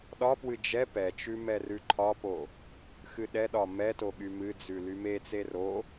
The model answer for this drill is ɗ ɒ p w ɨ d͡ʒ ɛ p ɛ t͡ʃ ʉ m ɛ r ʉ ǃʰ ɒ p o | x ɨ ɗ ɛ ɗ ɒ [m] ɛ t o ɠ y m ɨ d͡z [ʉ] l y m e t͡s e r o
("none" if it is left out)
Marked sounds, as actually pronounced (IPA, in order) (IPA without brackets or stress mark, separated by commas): m, ʉ